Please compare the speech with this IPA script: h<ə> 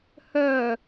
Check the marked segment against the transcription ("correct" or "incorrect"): incorrect